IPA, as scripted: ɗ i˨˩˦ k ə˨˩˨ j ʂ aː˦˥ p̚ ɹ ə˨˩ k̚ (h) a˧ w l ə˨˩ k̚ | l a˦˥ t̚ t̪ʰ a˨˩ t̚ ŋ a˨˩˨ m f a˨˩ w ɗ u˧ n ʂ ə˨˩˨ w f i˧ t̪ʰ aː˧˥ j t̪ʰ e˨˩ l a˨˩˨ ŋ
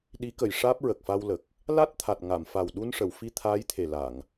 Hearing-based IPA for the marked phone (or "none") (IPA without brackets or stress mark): f